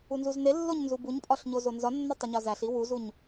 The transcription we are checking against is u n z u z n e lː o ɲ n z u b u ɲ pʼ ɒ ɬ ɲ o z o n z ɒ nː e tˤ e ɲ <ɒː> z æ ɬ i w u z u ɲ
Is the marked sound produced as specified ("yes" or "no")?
no